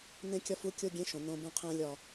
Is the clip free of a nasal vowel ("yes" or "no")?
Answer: no